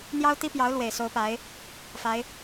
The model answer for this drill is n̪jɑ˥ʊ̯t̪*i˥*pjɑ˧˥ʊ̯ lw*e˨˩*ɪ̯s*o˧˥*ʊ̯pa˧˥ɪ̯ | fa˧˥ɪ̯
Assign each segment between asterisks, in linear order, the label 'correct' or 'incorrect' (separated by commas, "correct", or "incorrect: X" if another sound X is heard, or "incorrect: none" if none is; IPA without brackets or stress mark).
correct, correct, correct